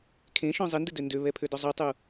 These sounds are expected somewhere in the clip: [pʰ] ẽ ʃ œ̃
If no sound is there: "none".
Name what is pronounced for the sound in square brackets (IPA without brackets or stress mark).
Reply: kʰ